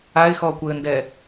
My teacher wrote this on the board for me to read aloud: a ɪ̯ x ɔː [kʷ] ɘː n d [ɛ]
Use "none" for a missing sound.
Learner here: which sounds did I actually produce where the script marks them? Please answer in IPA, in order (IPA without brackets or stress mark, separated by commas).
kʷ, ɛ